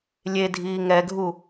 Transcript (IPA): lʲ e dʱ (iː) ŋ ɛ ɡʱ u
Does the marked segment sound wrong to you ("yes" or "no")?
no